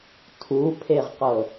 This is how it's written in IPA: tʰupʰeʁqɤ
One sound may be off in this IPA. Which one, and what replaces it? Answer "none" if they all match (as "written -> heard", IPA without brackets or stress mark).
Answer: none